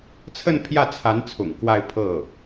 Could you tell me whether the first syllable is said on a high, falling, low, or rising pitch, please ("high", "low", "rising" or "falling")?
falling